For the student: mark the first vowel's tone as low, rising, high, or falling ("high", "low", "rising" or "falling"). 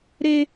high